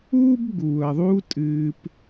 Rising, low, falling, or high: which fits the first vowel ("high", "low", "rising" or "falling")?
high